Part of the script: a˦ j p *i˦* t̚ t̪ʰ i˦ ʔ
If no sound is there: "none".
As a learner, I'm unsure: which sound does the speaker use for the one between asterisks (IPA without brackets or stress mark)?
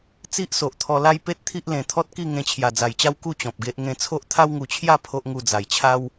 e˦